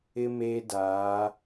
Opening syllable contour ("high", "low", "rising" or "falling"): high